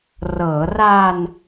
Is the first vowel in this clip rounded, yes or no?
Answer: no